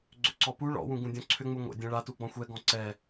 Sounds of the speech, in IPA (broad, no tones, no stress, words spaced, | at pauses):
ɡ͡ǀʏǀɔpu ɭɔ̰ wũɡũdʲɔ̃ǀʰʏ ŋ͡muŋʷɛ̰ dʲɛ̃ɭa tuɡ͡bɔ̃xʷɛ ɡɔ̃ǀɛ